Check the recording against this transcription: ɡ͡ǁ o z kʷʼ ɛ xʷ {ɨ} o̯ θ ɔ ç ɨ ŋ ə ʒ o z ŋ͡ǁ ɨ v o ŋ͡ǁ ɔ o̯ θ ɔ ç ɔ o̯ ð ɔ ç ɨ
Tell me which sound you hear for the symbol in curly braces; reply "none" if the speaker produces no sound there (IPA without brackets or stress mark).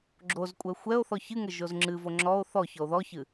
ɛ